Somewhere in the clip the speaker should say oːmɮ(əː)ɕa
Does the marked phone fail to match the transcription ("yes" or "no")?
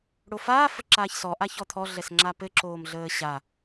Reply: no